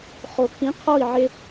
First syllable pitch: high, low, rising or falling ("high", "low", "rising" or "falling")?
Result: low